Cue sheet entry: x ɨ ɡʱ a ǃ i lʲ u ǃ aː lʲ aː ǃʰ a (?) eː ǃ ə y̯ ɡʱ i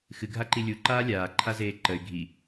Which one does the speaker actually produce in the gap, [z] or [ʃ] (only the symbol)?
z